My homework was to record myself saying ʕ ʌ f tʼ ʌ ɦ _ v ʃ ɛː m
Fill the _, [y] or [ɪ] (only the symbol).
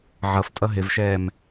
ɪ